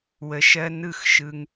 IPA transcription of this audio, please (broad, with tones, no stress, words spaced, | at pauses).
wə˧ ʃɜ˦nɯ˦˨xʃɯ˧ŋ